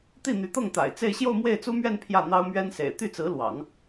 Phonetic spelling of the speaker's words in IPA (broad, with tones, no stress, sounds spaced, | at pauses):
t̪ i˥˩ n̪ y˧˥ t̪ ɤ˥˩ ŋ t̪ a̰˨˩ ɪ̯ t͡s e˥˧ ɪ̯ ɕ j o˥˧ ʊ̯ m w e˥˩ ɪ̯ t͡s u˥ m ɥ ɛ˥˧ n pʰ j ä˥˩ n̪ ɑ˥ ʊ̯ m ɥ ɛ˥ n s ḛ˨˩ ɪ̯ t̪ y˥˩ t͡s ɹ̩˧˥ l w ɑ̰˨˩˦ ŋ